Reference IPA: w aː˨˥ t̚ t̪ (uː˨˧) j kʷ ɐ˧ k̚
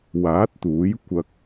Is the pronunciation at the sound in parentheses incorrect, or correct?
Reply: incorrect